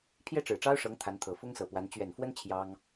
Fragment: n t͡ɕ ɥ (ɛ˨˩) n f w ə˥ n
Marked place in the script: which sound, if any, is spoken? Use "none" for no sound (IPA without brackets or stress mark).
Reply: ɛ˨˩